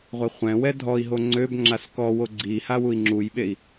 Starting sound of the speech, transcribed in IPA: ʁʷ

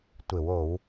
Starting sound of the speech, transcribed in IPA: tʷ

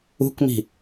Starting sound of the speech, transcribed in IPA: ṳ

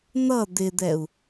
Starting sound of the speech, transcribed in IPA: n̪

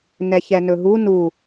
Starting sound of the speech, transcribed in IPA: n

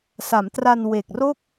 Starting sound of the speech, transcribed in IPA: s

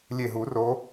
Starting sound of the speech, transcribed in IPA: lʲ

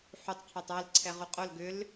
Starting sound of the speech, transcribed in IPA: ħ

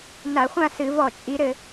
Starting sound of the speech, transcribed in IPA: n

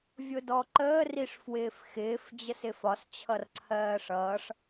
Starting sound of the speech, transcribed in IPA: vʲ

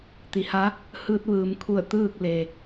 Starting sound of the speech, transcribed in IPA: t̪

